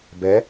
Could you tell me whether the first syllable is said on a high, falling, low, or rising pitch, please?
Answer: rising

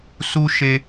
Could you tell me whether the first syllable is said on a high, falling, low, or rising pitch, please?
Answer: high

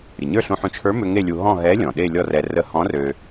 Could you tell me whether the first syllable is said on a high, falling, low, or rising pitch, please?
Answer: low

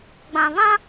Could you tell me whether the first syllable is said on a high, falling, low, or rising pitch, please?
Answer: low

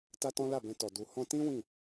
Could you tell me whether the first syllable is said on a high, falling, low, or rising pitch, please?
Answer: high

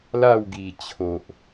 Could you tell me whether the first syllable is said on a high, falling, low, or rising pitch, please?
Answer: falling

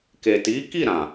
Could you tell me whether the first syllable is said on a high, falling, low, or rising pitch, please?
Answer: low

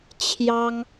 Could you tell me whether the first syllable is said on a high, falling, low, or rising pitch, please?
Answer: high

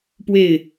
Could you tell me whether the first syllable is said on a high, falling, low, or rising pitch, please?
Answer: falling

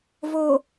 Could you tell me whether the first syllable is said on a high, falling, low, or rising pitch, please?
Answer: low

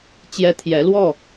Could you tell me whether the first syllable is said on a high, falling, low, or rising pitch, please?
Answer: high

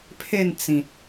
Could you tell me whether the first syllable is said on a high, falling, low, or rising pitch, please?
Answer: falling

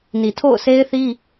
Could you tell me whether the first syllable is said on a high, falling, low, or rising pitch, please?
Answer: low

